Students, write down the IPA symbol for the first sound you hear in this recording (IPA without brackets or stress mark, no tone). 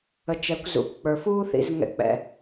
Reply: ə